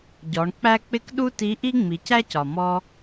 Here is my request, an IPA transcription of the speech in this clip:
ɟ ɔ˩˧ ɳ k͡p æ˥ k͡p ɪ˥ k ɗ u˥ t i˧˥ ʔ i˥ ŋ͡m i˩˧ c æ˥ c ɒ˩ m ɔ˧

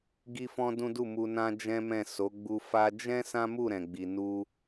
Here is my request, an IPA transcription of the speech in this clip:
ɡ i˦ f ɔ̃˦ d ũ˦ d u˦˨ m u˧ n ã˦ d͡ʒ ɛ̃˦ m ɛ̃˦˨ s o˨˦ ɡ͡b u˧ f a˧ d͡ʒ ɛ̃˦ s ã˦ m u˦˨ ɾ ɛ̃˨ ɡ͡b i˨ n u˧

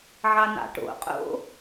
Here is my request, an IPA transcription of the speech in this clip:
ʕ ɑ n̪ ɑ̰ ʈ o̰ qʼ o̰

